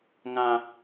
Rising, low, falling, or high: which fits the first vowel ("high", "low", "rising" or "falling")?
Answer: low